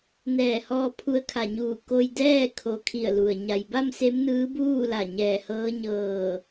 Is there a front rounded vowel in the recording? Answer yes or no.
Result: no